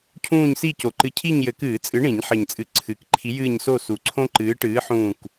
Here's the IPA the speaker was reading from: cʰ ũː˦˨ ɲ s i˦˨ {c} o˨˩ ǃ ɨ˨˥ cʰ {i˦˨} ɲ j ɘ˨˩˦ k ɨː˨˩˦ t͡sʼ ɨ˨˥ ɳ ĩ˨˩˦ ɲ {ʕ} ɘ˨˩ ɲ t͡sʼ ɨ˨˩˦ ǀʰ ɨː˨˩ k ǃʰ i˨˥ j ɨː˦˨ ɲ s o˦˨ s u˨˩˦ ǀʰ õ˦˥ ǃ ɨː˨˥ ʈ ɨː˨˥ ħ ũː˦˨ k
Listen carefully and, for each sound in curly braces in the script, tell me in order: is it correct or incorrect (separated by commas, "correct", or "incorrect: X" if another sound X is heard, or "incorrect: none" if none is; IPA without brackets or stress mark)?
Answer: correct, correct, incorrect: ħ